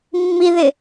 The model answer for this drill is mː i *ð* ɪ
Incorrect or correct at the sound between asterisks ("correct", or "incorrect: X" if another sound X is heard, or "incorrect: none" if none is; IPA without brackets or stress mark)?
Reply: correct